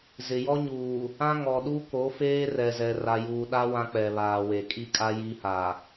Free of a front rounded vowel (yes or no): yes